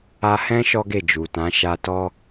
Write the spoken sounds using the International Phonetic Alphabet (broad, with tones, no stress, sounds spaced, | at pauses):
a˧ h ɛ̃˦ ʃ ɔ˦ ɡ e˦˨ d͡ʒ u˨ t ã˨˦ ʃ a˧ t ɔ˦